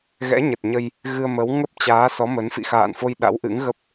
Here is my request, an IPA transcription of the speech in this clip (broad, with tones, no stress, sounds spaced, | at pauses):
ɣ ɛ̰˧˥ ɲ ə˨˩ t̚ ɲ ə˧ j | ɣ ɨ˧ ə̯ m ə˨˦ w ŋ ə˦˥ p̚ t͡ɕ aː˨˦ s ɔ˨˦ m ə˨˦ n f ḭ˧˨ x a̰ː˧˨ n f o˧ j ɗ a̰˧˥ w ʔ ɨ̰˧˥ ŋ ɣ ə˦˥ p̚